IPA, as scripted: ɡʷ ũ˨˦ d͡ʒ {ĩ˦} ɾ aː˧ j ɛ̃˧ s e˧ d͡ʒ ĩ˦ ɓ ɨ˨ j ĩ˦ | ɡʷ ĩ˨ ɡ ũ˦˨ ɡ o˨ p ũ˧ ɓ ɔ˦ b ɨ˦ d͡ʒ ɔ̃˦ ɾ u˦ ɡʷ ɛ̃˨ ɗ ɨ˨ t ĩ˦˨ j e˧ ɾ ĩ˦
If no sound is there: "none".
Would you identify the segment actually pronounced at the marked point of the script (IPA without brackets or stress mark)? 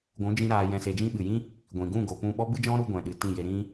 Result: ĩ˧